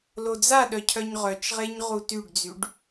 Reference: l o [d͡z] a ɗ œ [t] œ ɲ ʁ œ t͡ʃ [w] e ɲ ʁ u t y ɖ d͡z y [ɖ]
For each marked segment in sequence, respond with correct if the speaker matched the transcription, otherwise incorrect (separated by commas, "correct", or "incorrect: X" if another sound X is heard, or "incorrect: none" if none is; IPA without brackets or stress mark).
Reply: correct, incorrect: cʰ, incorrect: ʁ, correct